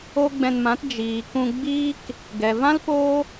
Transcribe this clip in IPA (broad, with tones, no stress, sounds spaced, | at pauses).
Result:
o˦ ɡ͡b ɛ̃˧ n m ã˨˦ t d͡ʒ iː˨ k ũ˧ ɡ͡b iː˦ k | ɡ ɛ˨ v ã˦ l p oː˦